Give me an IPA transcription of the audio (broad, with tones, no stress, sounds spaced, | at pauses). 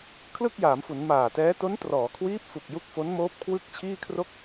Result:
kʰ l ɯ˥˩ k̚ j aː˩˦ m f u˩˦ n m aː˨˩ t ɛː˦˥ t o˦˥ n t r ɔː˩˦ kʰ w iː˦˥ p̚ f u˨˩ k̚ j u˦˥ k̚ f o˦˥ n m oː˦˥ p̚ kʰ w ɯ˥˩ k̚ t͡ɕʰ iː˥˩ kʰ r o˥˩ k̚